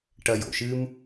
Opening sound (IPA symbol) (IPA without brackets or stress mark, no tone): ʈ